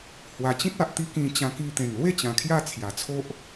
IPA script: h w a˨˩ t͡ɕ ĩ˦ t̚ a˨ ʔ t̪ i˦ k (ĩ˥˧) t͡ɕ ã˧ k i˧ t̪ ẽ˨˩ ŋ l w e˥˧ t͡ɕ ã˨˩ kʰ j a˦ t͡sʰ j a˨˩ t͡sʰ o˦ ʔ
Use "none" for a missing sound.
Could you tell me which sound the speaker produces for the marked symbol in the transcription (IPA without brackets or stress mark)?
ĩ˧